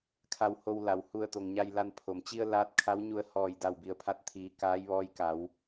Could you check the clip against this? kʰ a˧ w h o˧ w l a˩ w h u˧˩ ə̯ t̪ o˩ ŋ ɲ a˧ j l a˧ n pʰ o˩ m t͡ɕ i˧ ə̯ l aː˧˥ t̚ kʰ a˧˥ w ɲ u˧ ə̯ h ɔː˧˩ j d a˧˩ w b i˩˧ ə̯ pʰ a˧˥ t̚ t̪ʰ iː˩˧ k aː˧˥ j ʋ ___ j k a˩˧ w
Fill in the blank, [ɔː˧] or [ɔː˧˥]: ɔː˧˥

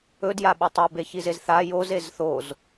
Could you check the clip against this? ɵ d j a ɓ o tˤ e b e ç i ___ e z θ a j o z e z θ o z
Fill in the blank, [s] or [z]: z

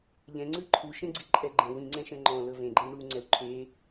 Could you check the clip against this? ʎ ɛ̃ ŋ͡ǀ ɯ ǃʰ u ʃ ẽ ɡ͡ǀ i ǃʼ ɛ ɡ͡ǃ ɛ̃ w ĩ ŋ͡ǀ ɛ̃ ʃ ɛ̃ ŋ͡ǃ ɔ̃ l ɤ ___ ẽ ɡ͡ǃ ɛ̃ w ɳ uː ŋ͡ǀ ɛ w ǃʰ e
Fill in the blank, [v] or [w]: v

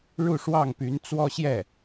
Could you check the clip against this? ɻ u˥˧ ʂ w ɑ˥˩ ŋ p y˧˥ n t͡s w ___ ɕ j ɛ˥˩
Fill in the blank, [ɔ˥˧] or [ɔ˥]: ɔ˥˧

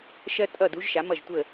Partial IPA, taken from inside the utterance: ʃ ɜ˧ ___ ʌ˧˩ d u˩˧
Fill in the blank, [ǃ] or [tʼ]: tʼ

